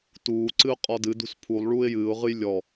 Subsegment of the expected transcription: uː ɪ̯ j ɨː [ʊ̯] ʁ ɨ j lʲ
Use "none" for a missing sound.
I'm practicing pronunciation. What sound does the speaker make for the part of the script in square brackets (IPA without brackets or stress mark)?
ʊ̯